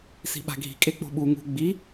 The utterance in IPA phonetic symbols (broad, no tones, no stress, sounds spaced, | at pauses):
s i̤ ɓ a̤ ɡʱ i̤ kʼ e k͡p o̤ ɓ u ŋ ṳ ɡ͡b i